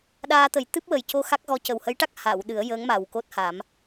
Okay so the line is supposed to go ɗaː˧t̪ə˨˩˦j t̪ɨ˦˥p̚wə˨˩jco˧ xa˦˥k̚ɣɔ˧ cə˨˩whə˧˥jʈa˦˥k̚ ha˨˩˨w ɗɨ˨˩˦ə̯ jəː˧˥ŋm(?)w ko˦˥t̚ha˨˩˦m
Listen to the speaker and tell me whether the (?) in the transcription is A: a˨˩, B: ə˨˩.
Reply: A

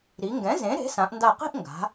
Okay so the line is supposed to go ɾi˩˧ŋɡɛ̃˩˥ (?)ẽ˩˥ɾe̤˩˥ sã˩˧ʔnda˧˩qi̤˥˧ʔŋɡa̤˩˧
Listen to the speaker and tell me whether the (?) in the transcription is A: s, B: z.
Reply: B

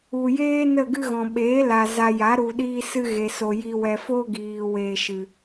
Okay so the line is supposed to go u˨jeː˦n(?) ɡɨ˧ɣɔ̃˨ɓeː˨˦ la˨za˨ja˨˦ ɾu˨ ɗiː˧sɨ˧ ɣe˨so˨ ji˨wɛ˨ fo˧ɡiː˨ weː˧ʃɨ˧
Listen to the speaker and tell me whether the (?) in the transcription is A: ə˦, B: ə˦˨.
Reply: B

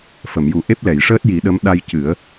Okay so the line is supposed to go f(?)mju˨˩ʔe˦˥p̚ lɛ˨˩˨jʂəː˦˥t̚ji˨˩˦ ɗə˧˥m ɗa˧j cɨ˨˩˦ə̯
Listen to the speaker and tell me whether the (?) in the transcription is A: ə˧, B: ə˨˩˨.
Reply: B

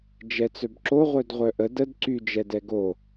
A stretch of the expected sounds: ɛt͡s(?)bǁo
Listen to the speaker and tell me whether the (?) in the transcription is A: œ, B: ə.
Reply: A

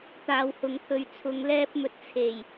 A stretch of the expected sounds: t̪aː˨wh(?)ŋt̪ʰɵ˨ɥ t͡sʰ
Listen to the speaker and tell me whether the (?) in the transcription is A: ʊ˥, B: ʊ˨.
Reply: B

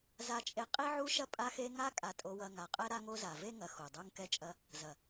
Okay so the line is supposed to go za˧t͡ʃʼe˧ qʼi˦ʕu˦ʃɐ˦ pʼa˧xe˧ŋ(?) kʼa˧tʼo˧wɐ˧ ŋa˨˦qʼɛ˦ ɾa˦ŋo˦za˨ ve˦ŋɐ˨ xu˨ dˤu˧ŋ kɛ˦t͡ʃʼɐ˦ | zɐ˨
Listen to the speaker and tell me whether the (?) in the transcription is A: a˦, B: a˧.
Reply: A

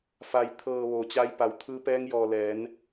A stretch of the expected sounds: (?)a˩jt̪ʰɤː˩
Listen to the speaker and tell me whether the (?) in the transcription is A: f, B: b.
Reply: A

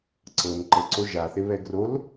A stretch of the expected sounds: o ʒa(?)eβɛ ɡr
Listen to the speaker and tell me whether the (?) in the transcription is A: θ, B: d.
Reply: A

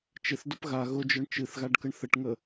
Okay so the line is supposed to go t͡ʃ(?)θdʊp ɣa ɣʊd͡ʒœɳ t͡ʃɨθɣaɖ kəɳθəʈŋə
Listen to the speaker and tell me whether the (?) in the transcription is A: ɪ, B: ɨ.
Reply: A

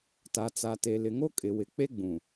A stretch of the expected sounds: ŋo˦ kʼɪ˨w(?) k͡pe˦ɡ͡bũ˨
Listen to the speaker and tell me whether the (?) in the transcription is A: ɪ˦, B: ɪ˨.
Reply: B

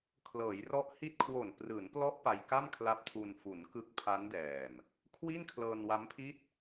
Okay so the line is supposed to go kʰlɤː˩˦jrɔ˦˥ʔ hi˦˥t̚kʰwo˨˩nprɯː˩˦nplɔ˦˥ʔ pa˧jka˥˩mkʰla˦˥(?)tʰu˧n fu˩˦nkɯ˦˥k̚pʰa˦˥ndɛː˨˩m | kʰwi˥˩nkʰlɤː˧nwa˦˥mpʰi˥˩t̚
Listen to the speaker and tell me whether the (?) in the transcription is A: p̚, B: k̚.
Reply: A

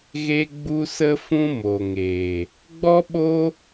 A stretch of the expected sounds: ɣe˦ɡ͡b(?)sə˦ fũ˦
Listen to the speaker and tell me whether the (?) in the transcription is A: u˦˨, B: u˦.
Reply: B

